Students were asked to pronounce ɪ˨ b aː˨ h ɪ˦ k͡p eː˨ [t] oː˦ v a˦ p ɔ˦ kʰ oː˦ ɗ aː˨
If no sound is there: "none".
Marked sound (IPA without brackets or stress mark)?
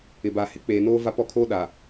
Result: n